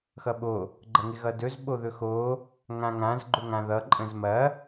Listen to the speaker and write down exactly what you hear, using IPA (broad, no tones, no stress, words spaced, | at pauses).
xʌɓo | ɡ͡ǃɐŋɪɣʌdɵz ɓoðɵxo | ŋãŋãz ɡ͡ǃɵŋãðʌ ǃʼə̃zmɐ